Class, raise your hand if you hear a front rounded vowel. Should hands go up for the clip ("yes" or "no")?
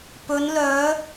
yes